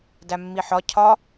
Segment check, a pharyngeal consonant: present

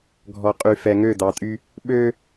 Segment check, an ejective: present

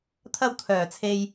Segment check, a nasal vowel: absent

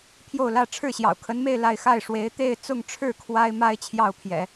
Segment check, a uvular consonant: absent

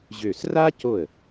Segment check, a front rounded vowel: present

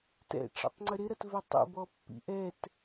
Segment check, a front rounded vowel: present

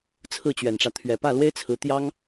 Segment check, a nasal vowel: absent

